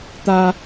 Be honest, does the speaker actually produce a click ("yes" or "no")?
no